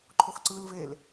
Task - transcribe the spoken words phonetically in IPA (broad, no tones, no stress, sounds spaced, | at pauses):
ǃʰ o x ǀ ɯ l v e l